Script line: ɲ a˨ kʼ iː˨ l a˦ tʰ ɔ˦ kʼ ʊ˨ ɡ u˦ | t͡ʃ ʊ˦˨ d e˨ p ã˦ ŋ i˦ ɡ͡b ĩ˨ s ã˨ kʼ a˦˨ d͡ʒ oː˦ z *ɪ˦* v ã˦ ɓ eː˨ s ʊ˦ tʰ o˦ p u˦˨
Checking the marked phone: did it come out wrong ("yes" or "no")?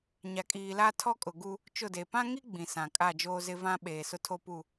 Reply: no